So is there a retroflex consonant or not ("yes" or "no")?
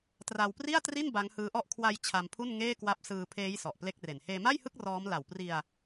no